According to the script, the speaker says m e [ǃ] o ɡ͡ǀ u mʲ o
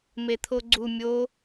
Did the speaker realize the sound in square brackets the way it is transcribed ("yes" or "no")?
no